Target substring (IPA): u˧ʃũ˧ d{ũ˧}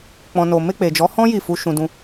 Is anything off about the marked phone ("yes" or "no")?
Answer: no